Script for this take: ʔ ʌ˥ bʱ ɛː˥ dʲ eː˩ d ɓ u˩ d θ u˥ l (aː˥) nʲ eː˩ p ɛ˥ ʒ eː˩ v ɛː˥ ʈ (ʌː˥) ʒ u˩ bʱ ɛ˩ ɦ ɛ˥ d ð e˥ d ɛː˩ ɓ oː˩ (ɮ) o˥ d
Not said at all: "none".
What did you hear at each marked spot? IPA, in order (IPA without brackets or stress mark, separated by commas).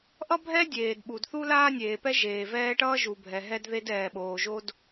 aː˥, ʌː˥, ʒ